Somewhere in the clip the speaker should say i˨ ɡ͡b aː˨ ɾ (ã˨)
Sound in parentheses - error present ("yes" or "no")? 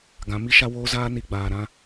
yes